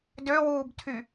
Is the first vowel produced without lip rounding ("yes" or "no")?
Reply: no